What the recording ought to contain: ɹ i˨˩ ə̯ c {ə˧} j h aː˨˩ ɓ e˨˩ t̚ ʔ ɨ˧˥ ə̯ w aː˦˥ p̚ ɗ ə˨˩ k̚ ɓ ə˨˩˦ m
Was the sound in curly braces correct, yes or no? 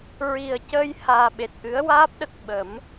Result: no